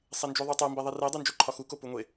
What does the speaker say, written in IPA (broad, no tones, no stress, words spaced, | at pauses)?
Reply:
sˤend͡ʒoðˤotˤe mbeðˤire dˤund͡ʒoǃʰɒxu kopuŋʷe